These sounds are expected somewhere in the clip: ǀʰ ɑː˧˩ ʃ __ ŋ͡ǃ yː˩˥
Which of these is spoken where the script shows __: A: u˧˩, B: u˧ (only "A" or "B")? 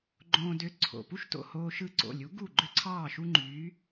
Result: B